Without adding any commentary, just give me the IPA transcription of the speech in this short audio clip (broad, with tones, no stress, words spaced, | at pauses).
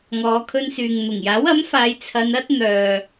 ŋɔː˨˧kʰɵ˧nsyː˨ŋ n̪ʊ˨˩ŋjaː˨˥wɐ˨˥mfaː˨˧j t͡sʰɐ˨˧nɐ˥t̚ n̪œː˨